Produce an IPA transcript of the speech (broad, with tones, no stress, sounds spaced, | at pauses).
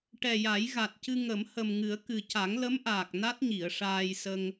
ʈ ɛ˨˩ j a˨˩˦ j ɣ a˨˩ t̚ c ɨ˧ ŋ ə˨˩˦ m h ə˨˩ m ŋ ɨ˨˩˦ ə̯ k ɨ˨˩ c a˨˩˦ ŋ l ə˧˥ m ʔ aː˨˩ k̚ n a˦˥ t̚ ɲ i˨˩˨ ə̯ ʂ aː˧ j s ə˧ ŋ